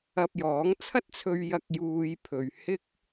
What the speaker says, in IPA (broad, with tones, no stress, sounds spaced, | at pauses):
ɐ˧ p̚ j ɔː˨˥ ŋ t͡sʰ ɐ˥ t̚ t͡sʰ ɵ˧ ɥ j ɐ˧ k̚ j uː˧ j pʰ ɵ˨ ɥ h ɪ˥ k̚